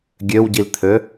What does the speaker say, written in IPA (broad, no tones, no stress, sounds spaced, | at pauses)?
ɡʲ ø w ɟ i l t̪ʰ ø